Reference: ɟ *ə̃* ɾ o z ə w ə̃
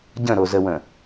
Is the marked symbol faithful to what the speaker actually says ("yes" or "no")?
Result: yes